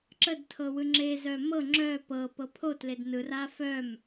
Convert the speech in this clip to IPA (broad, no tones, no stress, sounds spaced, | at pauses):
ǁ ə d tʰ ɤ w ɯ ŋ͡ǁ e z œ m ɤ ŋ͡ǁ œ p ɤ p ɤ pʰ o t l e d n ɯ r a f œ m